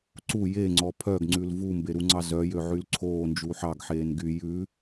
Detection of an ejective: absent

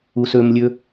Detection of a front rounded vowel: present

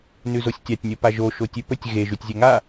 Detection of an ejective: absent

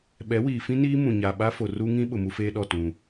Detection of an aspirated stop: absent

